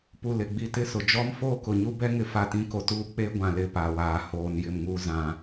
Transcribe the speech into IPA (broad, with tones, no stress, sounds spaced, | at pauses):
p u˨ l ɪ˨ ɡ͡b i˨ t ɪ˦ s ʊ˨ d͡ʒ ɔ˦ m f oː˦ k ʊ˨ ɲ u˦ b ɛ˦ ŋ ɪ˦ f a˦˨ t ĩ˦ k o˨ t uː˦ k͡p e˦ ɡʷ ã˨ l ɪ˨ p a˨ w aː˨ h oː˨ n j ɪ˦˨ m ŋ uː˦ z ã˨